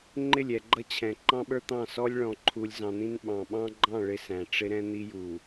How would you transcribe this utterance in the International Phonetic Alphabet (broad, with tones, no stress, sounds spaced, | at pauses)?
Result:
ŋ͡ǃ ɪ˦˨ lʲ ɛ˨ ɡ͡ǃ ʌ˦ t͡ɕʰ ɛ̃˨ ǃ ɑ̃˦ ɓ ə˞˦ t̪ ɑ̃˦˨ s ɔ˦ lʲ ɭ ɔ̃˨ ǃʰ u˨ lʲ z ɑ̃˨ n̪ ĩ˦ n ɓ ɑ̃˨ ɓ ɑ̃˦ ɡ͡ǃ ɑ̃˦˨ ɭ ɪ˦ s æ̃˨ ʈ͡ʂ ɪ˦ ɾ ɛ̃˦ n̪ i˦ j u˨